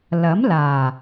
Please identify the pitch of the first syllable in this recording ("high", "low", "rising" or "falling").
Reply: rising